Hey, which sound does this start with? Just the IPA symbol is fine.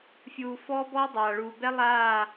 fʲ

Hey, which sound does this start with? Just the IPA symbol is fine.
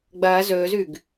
ɡ͡b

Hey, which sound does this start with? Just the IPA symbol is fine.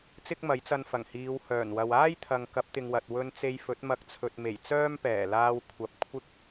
t͡s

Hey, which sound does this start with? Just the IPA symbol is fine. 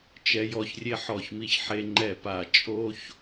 t͡ʃ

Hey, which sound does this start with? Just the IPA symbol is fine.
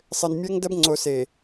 sˤ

